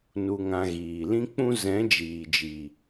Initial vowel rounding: rounded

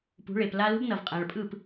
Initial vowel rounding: rounded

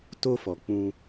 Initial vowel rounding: rounded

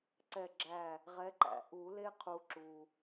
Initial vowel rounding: unrounded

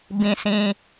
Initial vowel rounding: unrounded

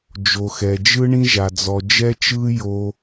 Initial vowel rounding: rounded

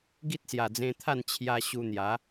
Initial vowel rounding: unrounded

